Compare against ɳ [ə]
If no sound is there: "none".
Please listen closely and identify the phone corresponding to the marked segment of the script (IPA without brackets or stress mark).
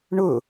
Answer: ʊ